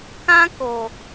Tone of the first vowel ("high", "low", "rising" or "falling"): high